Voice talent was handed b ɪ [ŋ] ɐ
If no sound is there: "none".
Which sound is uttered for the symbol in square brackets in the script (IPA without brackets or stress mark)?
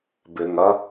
ŋ